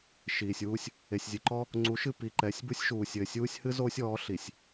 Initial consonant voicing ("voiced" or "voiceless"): voiceless